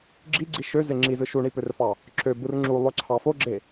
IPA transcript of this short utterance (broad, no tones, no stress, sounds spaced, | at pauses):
ɡ͡ǁ i ɡ͡ǀ i ʃ ø z e ŋ͡ǁ i z ɯ ʃ u ɳ i p ø r f ɑ | ǁ ø b ɯ r ŋ͡ǁ u lˠ ø ǀʰ ɑ f o ɡ͡ǁ e